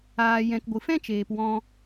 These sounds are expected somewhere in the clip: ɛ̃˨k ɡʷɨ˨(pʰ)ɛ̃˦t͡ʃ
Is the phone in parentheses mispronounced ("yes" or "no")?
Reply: yes